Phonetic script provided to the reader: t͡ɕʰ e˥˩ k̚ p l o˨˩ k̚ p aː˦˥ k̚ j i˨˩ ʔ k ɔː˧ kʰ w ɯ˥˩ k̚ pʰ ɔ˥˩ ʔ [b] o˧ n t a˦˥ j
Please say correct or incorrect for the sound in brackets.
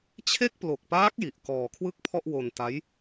incorrect